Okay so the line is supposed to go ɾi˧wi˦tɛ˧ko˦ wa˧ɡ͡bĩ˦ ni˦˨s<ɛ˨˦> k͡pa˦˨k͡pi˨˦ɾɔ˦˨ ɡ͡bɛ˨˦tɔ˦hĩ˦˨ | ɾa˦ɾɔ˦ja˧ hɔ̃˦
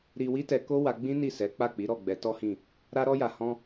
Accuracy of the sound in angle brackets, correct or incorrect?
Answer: correct